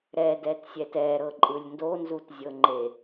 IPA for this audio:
ɾ ɛ d ɛ t sʲ ɛ t ɛ ɾ ɤ ǃʼ ɯ lʲ n d o n z u t zʲ ɤ ŋ͡ǃ e

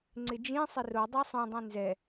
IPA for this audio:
ŋ͡ǀ ɪ d͡ʒ ĩ sˤ ɪ r o dˤ ɛ sˤ õ dˤ ĩ n z ɛ

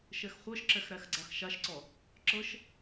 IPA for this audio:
ʃ ɛ x χʷ ɤ ʃ ǁ ɛ x ɾ æ x ɡ͡ǀ a x ʃ a ʃ ǀ ɔ | ǁ ɤ ʃ

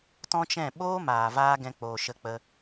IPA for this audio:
t ɔ̃˦ t͡ʃ ɛ̃˦˨ ɓ oː˦ m aː˨ v aː˧ ɡ ɛ̃˦ k͡p oː˧ ʃ ə˦ k͡p ə˦

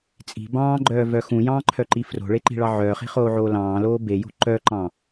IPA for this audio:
t͡sʼ i̤ b ɑ̃ː ɡ͡ǃ œː v œ x ũ j ɑ̃ː ǃʰ œ ǃ i f r o̤ ɭ e ǃ i̤ ɭ ɑ ʕ œː χ i̤ χ oː ʕ oː l ɑ̃ː l oː b e j o̤ ǃ œ ǃ ɑ̃

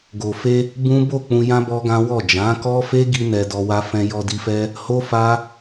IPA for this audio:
ɡ o˨ f e˧ | b ũ˦ b o˦˨ k͡p ũ˧ j ã˦ b ɔ˦ ɡ ã˦ w ɔ˦˨ d͡ʒ ã˨˦ k ɔ˦ f e˦ ɡ i˧ n ɛ˧ d ɔ˧ w a˧ f ɛ̃˧ j ɔ˧ d i˧ f ɛ˦ | h o˦ f a˦

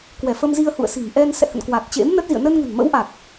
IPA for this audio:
k w ɛ˧˩ f ə˧ m z i˧ ə̯ h ṵ˧˨ ə̯ s i̤˨˩ m ʔ ɛ˧ n s ɛ̰˧˨ h ə̰˧˨ n k w a˨˩ t̚ t͡ɕ ḛ˧˥ m n ə˦˥ t̚ z ḭ˧˨ ə̯ n ə˧ n ŋ ə̤˨˩ n m ə̰˧˥ w ʔ a˨˩ k̚

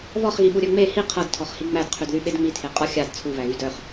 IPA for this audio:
β ɔ χ ɣ i ɓ u ɾʲ œ ŋ͡m e h i qʰ ɤ d tʰ ɔ χ h i ŋ͡m æ d qʰ y d ð y ɓ e d ŋ͡m i tʰ e qʼ ɔ xʲ a d t͡sʰ u β æ ɣ y d œ χ

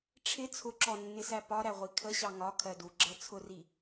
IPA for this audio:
ʈ͡ʂʰ ɪ t͡sʰ ʊ ǁ ɔ nː ɪ s æ p ɒ ɾ æ ʁʷ i kʰ ə ɕ ɑ ŋ ɒ kʰ ɜ d u ɡ͡ǁ ɜ t͡sʰ ʊ r i

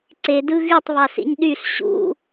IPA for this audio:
ǀ e d ɯ ɣ y tˤ β ɑ s ḭ ɲ ɗ y ɬ ɕ ṵ

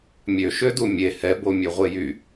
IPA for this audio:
mʲ ø ʃ ø d u mʲ e h ɛ b o mʲ ø ʁʷ e j y

